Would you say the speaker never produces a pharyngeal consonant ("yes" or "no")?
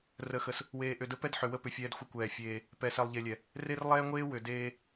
no